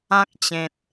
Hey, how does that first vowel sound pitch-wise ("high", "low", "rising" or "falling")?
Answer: high